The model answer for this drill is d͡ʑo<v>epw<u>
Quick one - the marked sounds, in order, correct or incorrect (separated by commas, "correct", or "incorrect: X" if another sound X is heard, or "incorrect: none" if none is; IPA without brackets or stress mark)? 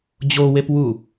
incorrect: w, correct